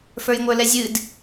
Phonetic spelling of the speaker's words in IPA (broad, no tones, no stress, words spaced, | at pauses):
fə˞jŋʷə˞lɛzʲɨd